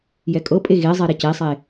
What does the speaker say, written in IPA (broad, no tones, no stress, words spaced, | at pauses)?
jɛkʼɤpʼe ɣezˤe ɾɛcesˤe